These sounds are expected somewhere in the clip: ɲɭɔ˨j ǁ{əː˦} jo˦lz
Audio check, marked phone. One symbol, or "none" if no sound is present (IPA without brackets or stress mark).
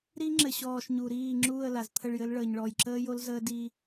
əː˦